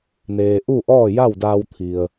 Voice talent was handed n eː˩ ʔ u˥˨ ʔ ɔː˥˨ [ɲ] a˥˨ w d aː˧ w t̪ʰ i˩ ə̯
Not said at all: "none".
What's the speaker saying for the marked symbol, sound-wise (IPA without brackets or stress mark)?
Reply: j